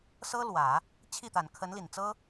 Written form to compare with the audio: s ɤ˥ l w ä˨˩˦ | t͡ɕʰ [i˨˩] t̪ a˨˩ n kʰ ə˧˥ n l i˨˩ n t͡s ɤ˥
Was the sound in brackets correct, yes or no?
no